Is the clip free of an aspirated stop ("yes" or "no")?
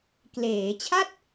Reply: no